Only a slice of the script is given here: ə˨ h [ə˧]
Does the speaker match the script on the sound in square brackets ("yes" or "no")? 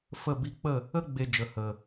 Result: no